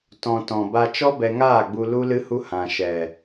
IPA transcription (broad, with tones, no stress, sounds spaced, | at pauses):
t ɔ̃˨ t ɔ̃˨ b a˧ t͡ʃ ɔ˦ b ɛ˧ ŋ aː˦˨ ɡ͡b u˧ l u˦ l ɨ˦ h u˦ h ã˨ ʃ ɛ˨